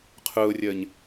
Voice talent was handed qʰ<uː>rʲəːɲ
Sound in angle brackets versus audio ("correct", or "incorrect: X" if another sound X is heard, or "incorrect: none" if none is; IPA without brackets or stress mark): incorrect: ʊː